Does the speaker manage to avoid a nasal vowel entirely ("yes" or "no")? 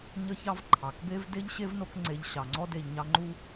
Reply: yes